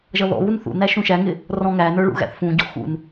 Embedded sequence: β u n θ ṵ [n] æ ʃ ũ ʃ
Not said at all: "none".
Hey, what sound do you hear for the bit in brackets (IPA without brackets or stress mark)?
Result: n